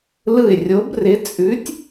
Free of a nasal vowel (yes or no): yes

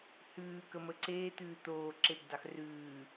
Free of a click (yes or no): no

